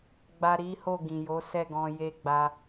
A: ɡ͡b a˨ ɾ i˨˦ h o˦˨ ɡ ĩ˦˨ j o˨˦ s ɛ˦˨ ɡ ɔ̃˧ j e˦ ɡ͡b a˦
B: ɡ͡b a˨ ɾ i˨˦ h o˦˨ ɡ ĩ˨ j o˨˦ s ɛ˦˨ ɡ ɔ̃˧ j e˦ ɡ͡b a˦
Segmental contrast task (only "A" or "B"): B